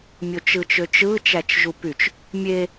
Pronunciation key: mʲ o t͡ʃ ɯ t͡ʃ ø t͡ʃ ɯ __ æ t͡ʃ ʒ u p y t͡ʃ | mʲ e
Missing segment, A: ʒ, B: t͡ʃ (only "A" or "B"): B